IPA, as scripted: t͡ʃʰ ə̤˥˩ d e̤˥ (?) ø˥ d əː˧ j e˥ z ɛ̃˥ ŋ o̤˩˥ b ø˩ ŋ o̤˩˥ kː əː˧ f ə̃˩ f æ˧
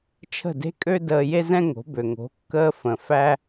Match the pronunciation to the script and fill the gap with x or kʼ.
kʼ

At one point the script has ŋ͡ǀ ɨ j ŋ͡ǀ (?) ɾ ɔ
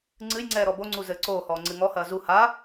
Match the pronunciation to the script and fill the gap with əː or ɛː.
ɛː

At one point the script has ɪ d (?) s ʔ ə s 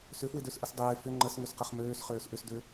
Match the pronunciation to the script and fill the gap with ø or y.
ø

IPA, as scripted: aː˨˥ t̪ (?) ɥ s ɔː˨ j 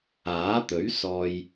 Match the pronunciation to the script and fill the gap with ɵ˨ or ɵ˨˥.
ɵ˨˥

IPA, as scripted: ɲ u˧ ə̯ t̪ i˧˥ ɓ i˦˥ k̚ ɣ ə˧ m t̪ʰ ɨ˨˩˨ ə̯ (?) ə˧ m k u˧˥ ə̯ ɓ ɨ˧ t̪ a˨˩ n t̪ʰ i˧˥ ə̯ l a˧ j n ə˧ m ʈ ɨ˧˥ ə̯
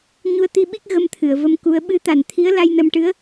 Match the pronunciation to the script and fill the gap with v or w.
v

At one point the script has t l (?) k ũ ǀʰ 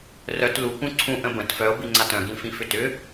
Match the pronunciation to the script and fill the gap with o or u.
u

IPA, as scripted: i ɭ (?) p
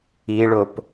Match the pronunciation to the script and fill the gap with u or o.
o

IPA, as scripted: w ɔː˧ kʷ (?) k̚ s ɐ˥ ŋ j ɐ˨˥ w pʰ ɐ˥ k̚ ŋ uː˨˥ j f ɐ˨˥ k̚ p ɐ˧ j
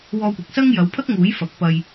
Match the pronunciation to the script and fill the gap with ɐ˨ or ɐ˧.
ɐ˨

